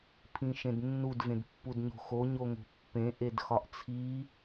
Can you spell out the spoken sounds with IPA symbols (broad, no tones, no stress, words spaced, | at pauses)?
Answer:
pʰĩʃẽdnːud vẽdpːudɲo̤xo ɲoŋo̤pːẽ ʔedxɒʔt͡sʰi